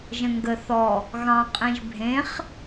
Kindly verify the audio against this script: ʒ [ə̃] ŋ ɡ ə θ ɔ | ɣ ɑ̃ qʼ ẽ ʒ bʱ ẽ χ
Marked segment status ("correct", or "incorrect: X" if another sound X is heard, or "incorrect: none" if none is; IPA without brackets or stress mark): correct